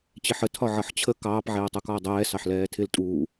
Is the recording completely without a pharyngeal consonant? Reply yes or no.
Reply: no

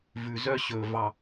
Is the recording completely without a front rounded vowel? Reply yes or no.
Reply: no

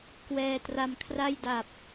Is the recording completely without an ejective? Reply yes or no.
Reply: yes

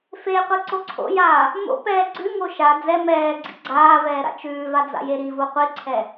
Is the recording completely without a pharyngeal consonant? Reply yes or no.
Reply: yes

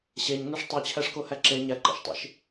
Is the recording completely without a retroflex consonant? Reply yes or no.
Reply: no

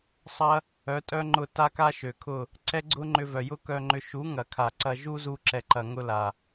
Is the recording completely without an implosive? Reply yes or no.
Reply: yes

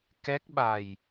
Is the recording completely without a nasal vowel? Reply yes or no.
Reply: yes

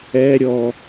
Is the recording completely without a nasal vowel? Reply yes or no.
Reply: yes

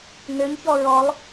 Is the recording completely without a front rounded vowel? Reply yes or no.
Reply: no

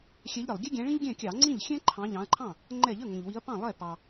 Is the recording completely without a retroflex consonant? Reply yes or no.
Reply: no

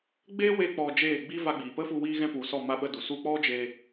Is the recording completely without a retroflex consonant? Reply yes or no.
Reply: yes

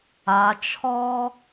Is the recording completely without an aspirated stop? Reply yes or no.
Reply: no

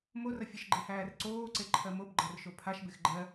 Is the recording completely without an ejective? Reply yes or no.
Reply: yes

